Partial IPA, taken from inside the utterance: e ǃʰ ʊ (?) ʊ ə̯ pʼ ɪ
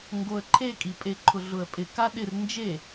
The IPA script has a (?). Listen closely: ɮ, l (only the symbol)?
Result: ɮ